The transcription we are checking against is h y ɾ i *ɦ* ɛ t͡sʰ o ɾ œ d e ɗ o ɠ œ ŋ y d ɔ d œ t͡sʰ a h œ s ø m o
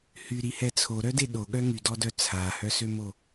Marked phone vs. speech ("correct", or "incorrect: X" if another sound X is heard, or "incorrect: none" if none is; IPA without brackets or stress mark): incorrect: h